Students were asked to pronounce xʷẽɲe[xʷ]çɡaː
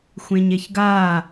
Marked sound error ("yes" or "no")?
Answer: yes